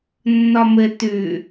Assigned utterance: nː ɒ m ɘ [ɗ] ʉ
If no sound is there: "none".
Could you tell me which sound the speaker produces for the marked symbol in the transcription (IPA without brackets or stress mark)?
t